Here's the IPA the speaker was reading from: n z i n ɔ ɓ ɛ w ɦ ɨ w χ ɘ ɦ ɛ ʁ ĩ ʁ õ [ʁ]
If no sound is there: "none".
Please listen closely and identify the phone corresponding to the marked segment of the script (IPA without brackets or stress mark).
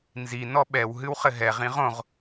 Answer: ʁ